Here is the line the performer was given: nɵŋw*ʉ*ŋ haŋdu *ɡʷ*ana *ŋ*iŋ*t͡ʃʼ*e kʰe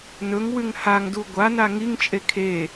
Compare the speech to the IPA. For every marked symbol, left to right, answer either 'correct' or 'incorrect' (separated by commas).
correct, correct, correct, correct